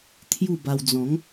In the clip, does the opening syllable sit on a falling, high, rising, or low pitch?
falling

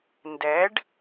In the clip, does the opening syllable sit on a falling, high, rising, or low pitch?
rising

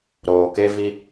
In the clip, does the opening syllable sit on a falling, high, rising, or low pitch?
low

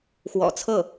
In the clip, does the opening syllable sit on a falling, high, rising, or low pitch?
low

